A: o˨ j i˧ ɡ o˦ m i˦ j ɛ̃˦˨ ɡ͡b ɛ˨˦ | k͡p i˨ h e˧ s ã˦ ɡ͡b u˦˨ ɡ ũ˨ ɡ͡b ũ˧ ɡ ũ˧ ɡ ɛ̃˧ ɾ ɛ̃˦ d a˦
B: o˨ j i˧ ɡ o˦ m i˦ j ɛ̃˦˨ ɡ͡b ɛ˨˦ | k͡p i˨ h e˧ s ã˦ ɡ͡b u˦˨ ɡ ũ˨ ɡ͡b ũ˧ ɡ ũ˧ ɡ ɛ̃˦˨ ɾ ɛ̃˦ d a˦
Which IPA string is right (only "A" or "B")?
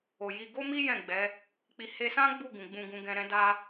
A